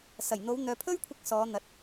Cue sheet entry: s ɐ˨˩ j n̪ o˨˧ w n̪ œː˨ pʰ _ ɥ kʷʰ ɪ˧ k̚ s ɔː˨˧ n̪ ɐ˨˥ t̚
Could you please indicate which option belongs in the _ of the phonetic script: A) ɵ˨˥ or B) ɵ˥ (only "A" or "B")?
B